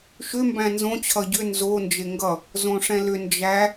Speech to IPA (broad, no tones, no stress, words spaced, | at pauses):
ʃʏ mbæ̃nzõ t͡ɕʰʌɟʏ nzo nd͡ʒeŋɡʌ | zõʂɛ̃lʏ nd͡ʒæ